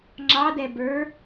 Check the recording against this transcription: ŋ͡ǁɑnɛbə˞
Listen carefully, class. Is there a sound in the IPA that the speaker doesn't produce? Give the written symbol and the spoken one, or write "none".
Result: n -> d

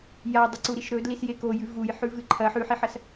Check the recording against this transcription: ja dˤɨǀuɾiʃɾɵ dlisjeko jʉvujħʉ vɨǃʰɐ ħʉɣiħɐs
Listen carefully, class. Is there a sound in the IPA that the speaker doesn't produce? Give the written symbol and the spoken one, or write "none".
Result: ɣ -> ħ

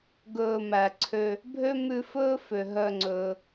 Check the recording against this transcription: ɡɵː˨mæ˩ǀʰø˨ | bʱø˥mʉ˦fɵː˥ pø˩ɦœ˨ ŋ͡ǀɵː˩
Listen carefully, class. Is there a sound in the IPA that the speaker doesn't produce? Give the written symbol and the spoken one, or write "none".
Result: p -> f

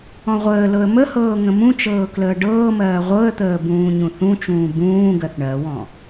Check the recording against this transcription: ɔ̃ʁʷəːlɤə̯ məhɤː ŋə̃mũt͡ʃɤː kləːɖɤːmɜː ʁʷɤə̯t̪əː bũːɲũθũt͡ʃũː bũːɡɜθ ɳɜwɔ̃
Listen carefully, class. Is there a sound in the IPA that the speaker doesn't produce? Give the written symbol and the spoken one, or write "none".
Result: none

